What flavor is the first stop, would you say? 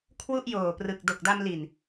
aspirated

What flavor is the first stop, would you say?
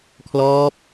aspirated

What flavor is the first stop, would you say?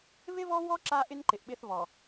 click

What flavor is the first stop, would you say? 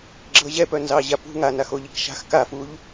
click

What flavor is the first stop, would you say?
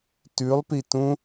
plain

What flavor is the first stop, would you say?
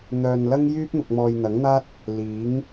plain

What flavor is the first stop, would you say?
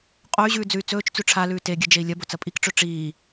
ejective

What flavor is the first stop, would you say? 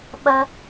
implosive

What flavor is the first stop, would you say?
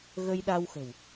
implosive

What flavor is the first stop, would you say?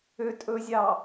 ejective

